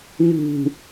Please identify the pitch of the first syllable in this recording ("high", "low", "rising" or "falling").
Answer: low